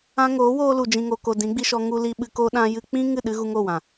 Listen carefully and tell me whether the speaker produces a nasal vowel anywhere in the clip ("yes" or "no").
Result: yes